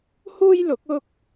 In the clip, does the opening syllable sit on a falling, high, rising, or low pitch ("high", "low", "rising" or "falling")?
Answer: high